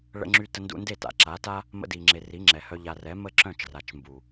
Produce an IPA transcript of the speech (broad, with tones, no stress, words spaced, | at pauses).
ɭə̰˧ŋ͡ǁy˧ tə˧ndṵ˧nde˦˨ta̰˨ ǁa˨˦ta˦ | mə̰˧di˨ŋ͡ǁe˨ ri˨˦ŋ͡ǁɛ˨hœ˧ ʎa˨rɛ˨˦mə˦˨ ǁœ̃˦˨t͡ʃra˨t͡ʃmbu˨